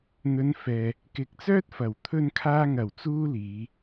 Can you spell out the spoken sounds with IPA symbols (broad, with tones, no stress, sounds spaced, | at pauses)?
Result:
n̪ ɵ˨˧ n f ɛː˨ | k ɪ˨˥ k̚ t͡s œː˥ t̚ f ɐ˨˩ w t̪ʰ ɵ˧ n kʰ aː˧ ŋ ɐ˨˩ w t͡s uː˥ l iː˨˧